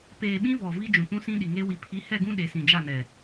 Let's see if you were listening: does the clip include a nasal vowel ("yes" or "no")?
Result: yes